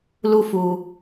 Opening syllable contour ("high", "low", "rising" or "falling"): high